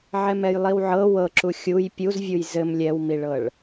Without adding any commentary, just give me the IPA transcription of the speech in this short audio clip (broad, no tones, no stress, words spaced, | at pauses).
ʕɛmɛjlˠiwʕɤ wɤǁu xʲuj pʲuzvʲuj zɘm lʲɛwmiɭɤɭ